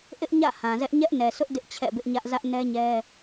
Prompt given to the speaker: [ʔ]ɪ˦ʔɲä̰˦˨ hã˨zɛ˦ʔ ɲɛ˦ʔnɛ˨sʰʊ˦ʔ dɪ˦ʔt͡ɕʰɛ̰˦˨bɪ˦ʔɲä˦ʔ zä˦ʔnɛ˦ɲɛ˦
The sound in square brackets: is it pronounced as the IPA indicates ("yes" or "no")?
yes